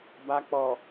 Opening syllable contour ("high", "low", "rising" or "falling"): low